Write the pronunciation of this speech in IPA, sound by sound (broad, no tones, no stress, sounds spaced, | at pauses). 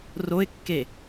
r o ɪ̯ kː e